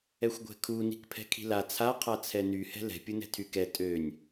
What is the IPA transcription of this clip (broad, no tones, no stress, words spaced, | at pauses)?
ɛxʷɡʷɛ̤kʰu ni̤kpʰɛ̤kʰi̤la t͡sʰa qʰat͡sʰɛny hɛ̤lɛ̤ pʲunɛ̤tʰykɛ tʼønʲ